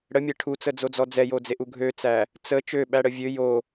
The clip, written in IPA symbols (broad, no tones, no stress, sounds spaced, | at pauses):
ɽ ə mʲ ɛ ʈʰ u t͡s ə d͡z o d͡z ɔ d͡z ɛ j o d͡z e ʔ u ɡʱ ø t͡s æ | t͡s ə t͡ʃ ø ɓ æ ɽ ə vʲ ø j o